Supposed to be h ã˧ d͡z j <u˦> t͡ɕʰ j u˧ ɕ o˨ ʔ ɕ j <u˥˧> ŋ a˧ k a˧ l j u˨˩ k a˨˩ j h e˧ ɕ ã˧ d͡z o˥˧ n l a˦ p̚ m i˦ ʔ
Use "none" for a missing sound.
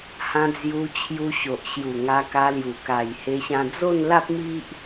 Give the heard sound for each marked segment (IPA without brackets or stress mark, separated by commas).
u˧, u˨˩